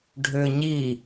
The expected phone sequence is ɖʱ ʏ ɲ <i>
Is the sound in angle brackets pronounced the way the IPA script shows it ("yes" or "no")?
yes